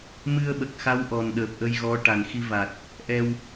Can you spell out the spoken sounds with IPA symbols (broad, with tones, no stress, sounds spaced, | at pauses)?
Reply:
m ɨ˧ ə̯ ɓ ə˨˩ k̚ x a˧˥ w ʔ ɔ˨˩ n ɗ əː˨˩ p̚ ʔ ə˧ j ɣ ɔ˧˥ ʈ a˨˩ n x i˧ v a˨˩ t̚ | ʔ ɛ˧ w